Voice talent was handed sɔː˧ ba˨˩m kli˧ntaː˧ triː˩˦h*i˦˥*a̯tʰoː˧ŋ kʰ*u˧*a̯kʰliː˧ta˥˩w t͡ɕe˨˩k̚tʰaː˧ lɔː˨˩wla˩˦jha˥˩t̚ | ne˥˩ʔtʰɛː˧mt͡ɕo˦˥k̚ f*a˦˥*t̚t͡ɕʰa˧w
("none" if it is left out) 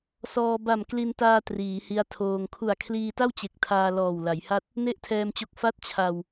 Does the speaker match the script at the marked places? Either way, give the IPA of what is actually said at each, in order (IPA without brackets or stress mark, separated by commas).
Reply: i˦˥, u˨˩, a˥˩